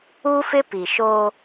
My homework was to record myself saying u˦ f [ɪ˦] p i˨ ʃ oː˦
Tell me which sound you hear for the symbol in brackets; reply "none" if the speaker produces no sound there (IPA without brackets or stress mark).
ɪ˦